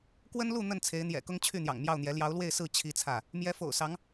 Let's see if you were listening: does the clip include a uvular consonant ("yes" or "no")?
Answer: no